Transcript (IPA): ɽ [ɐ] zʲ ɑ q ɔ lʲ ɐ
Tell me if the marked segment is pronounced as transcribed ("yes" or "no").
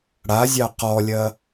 no